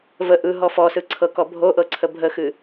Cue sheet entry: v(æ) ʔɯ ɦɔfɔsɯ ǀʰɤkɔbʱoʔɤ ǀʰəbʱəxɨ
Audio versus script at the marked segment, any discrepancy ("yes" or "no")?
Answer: yes